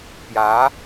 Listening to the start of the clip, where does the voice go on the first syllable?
rising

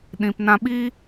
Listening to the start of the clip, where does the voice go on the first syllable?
low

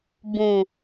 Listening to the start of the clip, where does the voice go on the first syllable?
low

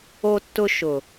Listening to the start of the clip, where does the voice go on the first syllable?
high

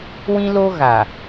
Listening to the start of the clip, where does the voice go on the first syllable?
high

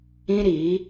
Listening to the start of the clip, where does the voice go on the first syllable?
high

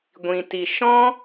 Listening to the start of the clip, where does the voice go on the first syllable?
low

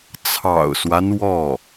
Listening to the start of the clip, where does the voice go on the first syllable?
low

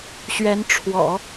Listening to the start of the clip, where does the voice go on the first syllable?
rising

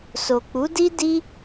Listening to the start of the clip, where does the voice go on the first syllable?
low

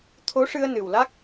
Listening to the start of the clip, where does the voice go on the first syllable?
rising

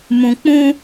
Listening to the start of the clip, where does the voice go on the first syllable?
low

